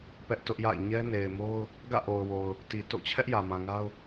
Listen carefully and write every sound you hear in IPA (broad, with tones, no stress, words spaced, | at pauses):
pɛ˦ʔtʊ˦ʔja̰˦˨ɪ̯ ɲɛ˦ne˨ɪ̯mo˦ʊ̯ | ɡä̰˦˨ʔo˨ʊ̯wo˨ʊ̯ | ti˨ to̰˦˨ t͡ɕʰɛ˦ʔjä˨ mã˨ŋa˦ʊ̯